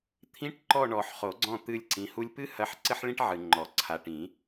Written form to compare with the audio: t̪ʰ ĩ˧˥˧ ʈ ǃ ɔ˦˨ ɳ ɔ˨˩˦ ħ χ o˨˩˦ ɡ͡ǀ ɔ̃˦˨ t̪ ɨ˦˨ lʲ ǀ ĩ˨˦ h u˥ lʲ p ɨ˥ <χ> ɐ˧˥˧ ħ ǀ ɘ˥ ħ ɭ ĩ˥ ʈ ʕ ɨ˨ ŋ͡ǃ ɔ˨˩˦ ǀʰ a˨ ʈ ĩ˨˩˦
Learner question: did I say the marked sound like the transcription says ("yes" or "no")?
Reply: no